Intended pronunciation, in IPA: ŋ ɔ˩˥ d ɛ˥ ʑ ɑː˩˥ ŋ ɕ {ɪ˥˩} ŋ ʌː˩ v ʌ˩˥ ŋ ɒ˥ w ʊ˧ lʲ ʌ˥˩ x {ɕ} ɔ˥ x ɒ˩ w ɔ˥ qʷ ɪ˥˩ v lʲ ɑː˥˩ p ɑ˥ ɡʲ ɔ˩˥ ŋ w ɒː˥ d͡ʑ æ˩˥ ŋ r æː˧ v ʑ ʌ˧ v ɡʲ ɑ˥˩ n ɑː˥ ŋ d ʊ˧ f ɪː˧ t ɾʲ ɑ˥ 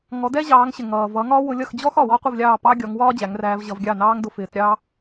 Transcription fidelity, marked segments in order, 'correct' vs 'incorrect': incorrect, incorrect

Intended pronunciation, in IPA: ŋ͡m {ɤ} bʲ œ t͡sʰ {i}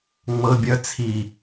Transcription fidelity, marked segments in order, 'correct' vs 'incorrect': correct, correct

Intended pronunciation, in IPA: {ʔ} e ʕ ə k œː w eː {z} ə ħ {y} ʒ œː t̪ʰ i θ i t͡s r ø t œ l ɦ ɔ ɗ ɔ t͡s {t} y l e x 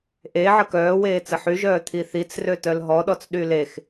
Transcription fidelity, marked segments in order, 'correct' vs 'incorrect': correct, incorrect, correct, incorrect

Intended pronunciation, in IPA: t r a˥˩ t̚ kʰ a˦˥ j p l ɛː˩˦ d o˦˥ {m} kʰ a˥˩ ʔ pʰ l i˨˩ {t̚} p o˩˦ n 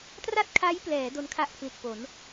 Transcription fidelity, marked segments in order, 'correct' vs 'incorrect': incorrect, correct

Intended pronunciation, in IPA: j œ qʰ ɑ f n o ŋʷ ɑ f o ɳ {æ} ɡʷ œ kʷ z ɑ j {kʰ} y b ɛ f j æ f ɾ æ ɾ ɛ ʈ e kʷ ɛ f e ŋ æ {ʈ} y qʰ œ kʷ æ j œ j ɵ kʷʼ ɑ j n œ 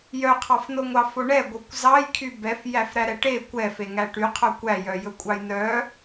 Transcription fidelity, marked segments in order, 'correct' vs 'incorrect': incorrect, correct, correct

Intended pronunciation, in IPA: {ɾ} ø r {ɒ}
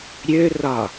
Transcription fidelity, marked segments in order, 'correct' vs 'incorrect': incorrect, correct

